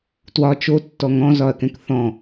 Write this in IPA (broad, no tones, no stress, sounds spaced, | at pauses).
t w ɒ t͡ʃ o tː ɔ ŋ ɔ̃ z ɒ ɐ̯ k ɛ̃ k θ ɔ̃